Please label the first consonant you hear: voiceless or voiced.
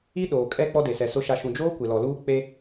voiced